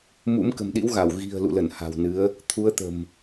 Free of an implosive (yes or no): no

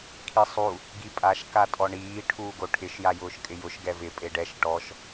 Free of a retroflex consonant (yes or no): no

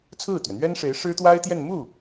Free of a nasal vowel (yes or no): yes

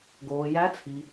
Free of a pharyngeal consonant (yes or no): yes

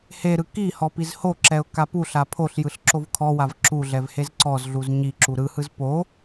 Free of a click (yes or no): no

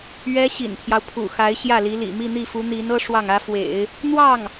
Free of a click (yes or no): yes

